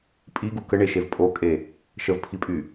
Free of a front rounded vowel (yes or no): no